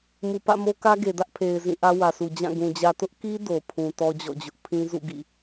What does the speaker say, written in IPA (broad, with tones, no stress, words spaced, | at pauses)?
mu˨pä̰˦˨mo˦kä˦ ɡe˨dä˦ʔpʰe˨ɪ̯ zĩ˦˨ʔä˦wä˨su˨ d͡ʑã˦˨ɡũ˨ d͡ʑä˨tʊ˦ʔki˦ do˨ pʰũ˨ tɔ˦d͡ʑɔ̰˦˨d͡ʑʊ˦ʔ pʰĩ˦zṵ˦˨ ɡḭ˦˨